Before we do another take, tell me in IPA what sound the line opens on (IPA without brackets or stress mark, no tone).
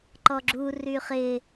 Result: ǃ